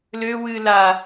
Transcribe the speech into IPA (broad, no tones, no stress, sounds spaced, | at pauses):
l ø w ɨ l a